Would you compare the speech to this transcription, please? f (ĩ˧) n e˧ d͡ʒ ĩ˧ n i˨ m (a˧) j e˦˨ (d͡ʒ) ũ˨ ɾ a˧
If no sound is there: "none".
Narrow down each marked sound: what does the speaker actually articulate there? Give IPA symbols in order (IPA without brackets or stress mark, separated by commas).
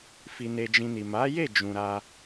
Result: i˧, a˨˦, d͡ʒ